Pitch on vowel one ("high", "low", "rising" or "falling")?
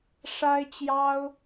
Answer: high